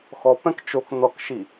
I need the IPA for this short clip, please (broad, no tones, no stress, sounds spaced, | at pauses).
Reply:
x ɔ p ɛ̃ k t͡ʃ o k n ɔ k ʃ i